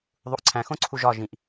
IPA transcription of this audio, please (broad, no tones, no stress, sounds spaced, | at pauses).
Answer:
ðˤ u ʔ ǀʰ æ̃ x õ ǀʰ u ʒ ɒ ʒ ĩ ʔ